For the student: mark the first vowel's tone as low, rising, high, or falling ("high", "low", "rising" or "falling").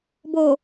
low